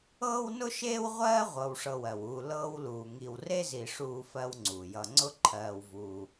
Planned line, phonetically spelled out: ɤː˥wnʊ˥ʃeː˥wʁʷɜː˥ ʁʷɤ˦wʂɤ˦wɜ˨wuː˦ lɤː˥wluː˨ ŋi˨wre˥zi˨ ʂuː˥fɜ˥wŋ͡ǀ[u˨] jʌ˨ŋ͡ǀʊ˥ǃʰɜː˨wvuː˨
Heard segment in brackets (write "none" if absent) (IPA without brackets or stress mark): u˩